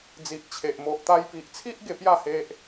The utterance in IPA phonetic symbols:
d͡z i˨ ʔ t͡ɕʰ e˨ ʔ m o˨ ʔ t̪ a˧ j p i˨ ʔ t͡sʰ i˦ ʔ ɡ e˧ p j a˥˧ h e˦ ʔ

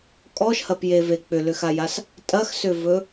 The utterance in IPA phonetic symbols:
kʼ ɔ ʃ h ɐ p j e v e k͡p ʏ l ʏ x a j a s | tʼ ɐ x s ʏ v ɵ

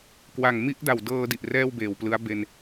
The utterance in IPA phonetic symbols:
k w a˨˩ ŋ m i˦˥ ʔ d a˨˩ w d ɤː˧ d i˨˩ ʔ r ɛː˥˩ w b eː˨˩ w p l ɯ˦˥ a̯ b e˧ n

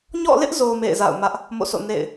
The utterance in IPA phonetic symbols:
ɲ ɔ̰˦˨ l ɪ˦ ʔ z o˨ m ḛ˦˨ ɪ̯ z a̰˦˨ ʊ̯ m ä˦ ʔ | m o̰˦˨ s o̰˦˨ n ḛ˦˨ ɪ̯

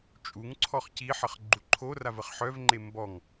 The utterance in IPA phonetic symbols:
t͡ʃʼ u ŋ ǀʰ ɔ χ c i ħ ə χ ɡ͡ǃ u ǃʰ o r a v ə χ ħ œ v ŋ͡ǃ e m b ɔ ŋ

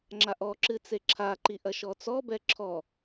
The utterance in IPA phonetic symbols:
ŋ͡ǁ a ʔ ɔ ǁ ɨ t͡s e ǁʰ a ǃ i ʔ ɐ ʃ ɔ t͡s ɔ b ɛ ǁʰ ɔ

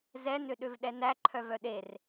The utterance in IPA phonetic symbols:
z ɛ n ø ɗ ø v ɗ ɛ n æ ǃʰ œ v œ ɗ e r

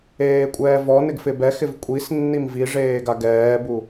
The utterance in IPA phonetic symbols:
eː kʷʼ ɛː v ɔ n ɪ ɡ f ɪ b ɛ x ɪ v kʷʼ i s nː i m v i ʐ eː ɡ a ɡ ɛː b u

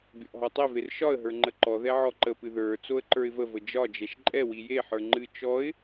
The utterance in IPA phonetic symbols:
bʲ ɔ ʔ ɦ ɔ tˤ e v e r ʃ ɒ ə̯ ɦ ə˞ ŋ͡ǃ ə ǃ ɔ ð ɛ ʕ ɔ ǃ ə p ɨ ð ə˞ t͡s o ə̯ ǃ ə˞ ɪ̯ v ə v ə d͡ʒ ɒ d͡ʒ ɛ ʃ ǃʼ ɛ w i j e ħ ə˞ ŋ͡ǃ ɨ t͡ʃ ɔ ɪ̯

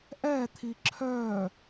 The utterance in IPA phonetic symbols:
ʔ ɛ t̪ʰ i ǁʰ œ

